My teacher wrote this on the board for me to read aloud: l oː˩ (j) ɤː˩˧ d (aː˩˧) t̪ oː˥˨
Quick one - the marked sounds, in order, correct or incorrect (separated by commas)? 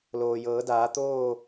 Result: correct, correct